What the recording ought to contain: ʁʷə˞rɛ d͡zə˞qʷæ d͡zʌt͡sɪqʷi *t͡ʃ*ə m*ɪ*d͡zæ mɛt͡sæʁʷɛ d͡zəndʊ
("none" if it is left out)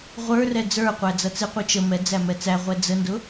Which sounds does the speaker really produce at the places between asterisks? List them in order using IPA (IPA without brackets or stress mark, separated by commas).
t͡ʃ, ɛ